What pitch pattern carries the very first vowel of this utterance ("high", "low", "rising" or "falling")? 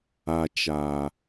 low